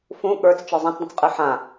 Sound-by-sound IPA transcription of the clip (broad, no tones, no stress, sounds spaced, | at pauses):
f ũ ɠ ə˞ t͡s t͡ʃ ə˞ zˤ ã t͡s dˤ ə̃ t͡s qʼ ɨ ħ ã